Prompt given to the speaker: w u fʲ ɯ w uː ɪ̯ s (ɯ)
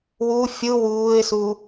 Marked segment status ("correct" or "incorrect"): incorrect